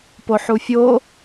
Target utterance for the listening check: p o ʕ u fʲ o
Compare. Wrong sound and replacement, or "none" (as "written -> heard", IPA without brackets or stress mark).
ʕ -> ħ